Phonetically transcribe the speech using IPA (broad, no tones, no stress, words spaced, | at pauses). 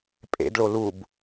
pʼḛdɭo lub